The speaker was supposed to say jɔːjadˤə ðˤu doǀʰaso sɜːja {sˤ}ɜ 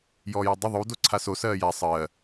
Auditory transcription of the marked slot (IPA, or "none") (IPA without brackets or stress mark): sˤ